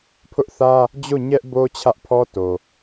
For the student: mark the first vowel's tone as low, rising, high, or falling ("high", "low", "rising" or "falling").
high